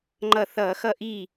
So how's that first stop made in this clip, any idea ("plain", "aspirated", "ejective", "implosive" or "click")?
click